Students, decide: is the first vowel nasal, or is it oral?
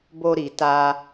oral